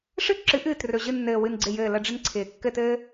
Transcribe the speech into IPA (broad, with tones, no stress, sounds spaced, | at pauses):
ʂ ɨ˥ ǁ ɨ˩˥ ʔ ɨː˨˩ t r ɵ˨˩ ʑ ɨ˥˩ nː ɘː˨˩ w ɨ˥˩ n ɡ͡ǀ ɪ˥˩ j ɘː˥˩ l ə˥˧ ɖ͡ʐ ɪ˥ n ǀʰ ɪː˨˩ kː ɘ˥˧ t ɘː˥